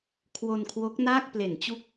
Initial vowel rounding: rounded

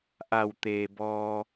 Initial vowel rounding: unrounded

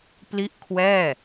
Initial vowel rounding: unrounded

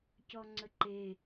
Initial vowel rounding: rounded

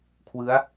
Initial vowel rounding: unrounded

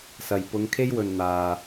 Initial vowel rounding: unrounded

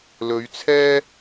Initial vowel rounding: rounded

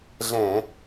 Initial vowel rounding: unrounded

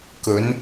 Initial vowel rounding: rounded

